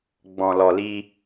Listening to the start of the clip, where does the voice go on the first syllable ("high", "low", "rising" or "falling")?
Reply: low